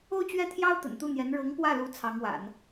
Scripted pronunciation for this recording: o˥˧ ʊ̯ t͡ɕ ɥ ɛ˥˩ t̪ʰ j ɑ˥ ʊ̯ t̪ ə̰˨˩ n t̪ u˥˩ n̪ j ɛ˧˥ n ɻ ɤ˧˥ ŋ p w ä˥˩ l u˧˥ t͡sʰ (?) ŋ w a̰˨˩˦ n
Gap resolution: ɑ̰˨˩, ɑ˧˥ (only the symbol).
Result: ɑ˧˥